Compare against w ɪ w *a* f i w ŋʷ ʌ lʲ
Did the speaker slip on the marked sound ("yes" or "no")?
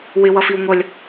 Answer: yes